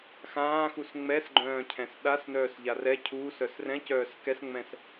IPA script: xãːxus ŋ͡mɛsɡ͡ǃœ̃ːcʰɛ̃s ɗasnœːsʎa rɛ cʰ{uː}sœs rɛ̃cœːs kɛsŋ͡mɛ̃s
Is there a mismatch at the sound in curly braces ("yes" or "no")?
no